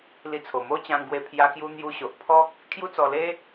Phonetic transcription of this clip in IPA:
li˧t͡sʰo˨˩ mo˦ t͡ɕã˧ŋ ɡwe˧pʰja˧ kju˧n̪ju˧ɕo˨ʔpʰɔ˦k̚ | kʰju˦t͡sɔ˧le˦

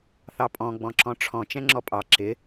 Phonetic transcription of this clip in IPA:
θɑpʼɔ̃ ɡ͡bɔ̃ǁɔ̃ʈ͡ʂʰɔ̃ t͡ʃɛ̃ŋ͡ǁɔpʼɑ ǁɪ

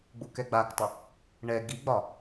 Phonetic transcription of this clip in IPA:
ɡ͡bukɛɡ͡baktˤə | ɳɛ ɡiɡ͡bɒ

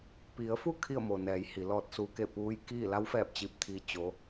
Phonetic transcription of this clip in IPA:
pi˩˧ə̯fu˥˨ kʰi˥˨ə̯mo˩nɛː˩˧j hi˩˧lɔː˧t̚suː˧ke˥˨ puː˧˥jkiː˥˨ la˧˥wfɛː˧˩p̚ t͡ɕi˧˥p̚t̪ʰiː˧˥ t͡ɕo˧˥

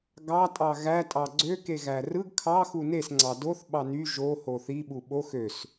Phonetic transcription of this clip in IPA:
ɡɑ tʼɑɣæ tʼɑɡ͡ǀø keɣærɯɡ kʰɑ xunes ŋ͡ǀɑdoθ ɓɑny ʒo hoθi ɓuɓox øs

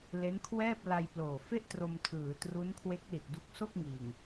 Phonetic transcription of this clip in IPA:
le˦˥nkʰwɛː˥˩p̚ la˧jploː˨˩fe˥˩ʔ tro˧mtʰɯː˩˦ tru˦˥nkʰwe˦˥k̚ li˨˩t̚du˦˥k̚so˥˩k̚ŋiː˨˩ŋ

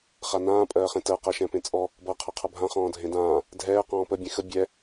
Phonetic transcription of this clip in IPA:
χanãː pʼɜːχẽtɜ qɜʃɛ̃pẽt͡sʼɔ | bʌ qʰʌqʰʌbʱã χɔ̃ːdʱẽdãː | dʱɛː qɔ̃ːpə bʲẽxə bʲɛ

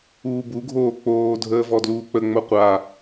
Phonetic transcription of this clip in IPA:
uːbuɡʱoː k͡poːdʱəː vɔdluːk͡pəŋ͡mo qʷa

